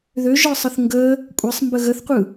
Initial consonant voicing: voiced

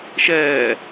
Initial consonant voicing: voiceless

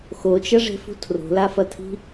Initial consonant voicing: voiceless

